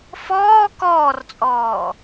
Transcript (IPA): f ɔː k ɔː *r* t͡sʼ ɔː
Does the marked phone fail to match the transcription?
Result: no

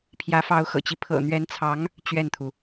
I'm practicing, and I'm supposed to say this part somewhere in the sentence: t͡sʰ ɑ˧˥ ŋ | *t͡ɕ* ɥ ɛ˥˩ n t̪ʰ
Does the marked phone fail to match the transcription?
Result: no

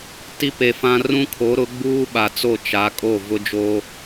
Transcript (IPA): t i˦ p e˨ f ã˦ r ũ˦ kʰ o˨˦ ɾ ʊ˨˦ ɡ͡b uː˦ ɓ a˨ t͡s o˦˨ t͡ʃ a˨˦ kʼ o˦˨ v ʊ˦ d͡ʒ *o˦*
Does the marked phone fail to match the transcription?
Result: no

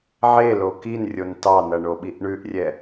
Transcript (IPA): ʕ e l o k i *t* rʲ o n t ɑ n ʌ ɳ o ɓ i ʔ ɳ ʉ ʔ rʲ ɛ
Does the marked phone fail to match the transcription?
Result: yes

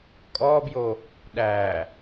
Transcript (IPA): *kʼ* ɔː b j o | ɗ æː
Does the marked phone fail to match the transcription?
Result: no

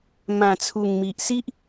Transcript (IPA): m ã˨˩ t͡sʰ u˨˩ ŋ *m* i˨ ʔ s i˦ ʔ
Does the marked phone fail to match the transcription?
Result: no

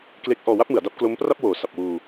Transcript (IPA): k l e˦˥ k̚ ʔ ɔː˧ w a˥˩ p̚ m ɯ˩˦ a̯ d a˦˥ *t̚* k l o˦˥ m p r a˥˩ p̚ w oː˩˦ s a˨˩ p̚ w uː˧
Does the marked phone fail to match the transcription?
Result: yes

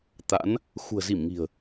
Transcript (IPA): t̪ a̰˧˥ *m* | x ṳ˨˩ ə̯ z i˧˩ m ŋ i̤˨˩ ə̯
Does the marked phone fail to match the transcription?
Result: yes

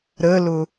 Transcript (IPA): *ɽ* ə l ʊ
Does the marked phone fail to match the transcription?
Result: yes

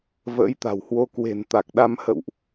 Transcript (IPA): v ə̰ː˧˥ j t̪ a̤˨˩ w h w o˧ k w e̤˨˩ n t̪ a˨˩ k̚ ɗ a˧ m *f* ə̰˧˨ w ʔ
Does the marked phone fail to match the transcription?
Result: yes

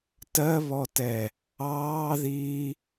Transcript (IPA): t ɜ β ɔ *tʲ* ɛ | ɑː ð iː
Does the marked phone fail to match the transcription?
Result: yes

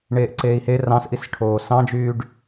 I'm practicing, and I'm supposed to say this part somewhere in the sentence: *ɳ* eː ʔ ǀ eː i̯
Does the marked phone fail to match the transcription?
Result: no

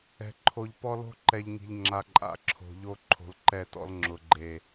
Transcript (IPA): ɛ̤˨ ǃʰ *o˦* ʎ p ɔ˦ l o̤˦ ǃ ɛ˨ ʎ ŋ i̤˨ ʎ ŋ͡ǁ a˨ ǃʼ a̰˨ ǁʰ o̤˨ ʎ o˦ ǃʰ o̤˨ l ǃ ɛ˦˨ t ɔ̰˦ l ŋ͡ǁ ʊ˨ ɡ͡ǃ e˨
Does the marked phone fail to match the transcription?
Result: yes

